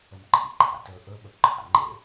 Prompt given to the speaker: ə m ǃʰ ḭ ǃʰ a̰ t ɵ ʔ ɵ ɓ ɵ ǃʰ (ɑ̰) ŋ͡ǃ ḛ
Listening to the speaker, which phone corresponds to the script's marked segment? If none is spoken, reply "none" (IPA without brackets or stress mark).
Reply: a̰